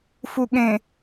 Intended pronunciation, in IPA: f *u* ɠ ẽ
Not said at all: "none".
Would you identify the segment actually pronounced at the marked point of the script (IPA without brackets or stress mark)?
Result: u